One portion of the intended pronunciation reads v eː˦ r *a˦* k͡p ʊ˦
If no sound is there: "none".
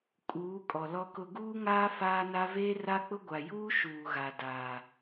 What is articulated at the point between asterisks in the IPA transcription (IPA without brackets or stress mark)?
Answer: a˦